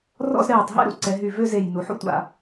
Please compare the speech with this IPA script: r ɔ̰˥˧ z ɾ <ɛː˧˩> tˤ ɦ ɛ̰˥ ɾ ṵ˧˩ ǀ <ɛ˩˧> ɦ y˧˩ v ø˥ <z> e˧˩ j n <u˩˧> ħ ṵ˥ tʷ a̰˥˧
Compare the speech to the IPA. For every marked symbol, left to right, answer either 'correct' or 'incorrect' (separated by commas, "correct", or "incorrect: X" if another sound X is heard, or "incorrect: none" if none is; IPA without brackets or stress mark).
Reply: correct, correct, correct, correct